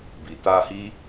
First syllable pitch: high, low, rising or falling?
low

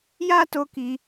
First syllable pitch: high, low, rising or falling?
high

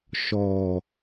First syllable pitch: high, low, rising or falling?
low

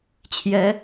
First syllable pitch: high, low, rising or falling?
rising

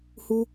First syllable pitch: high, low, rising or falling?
high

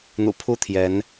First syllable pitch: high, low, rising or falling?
low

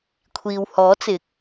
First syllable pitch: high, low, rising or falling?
low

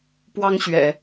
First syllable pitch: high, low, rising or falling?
high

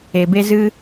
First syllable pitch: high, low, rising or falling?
low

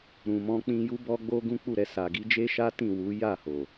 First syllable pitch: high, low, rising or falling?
low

